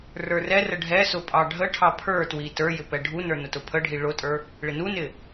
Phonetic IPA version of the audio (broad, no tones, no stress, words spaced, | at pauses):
rə˞rɛrə ɖʱɛsʊ pʼɑɖʱəʈʰɑ pʰə˞twi tə˞jɪ pɛɖʱunə˞ nʊtʊpʰəɖʱi ɭʊtʼə˞ | ɭɪnunɪ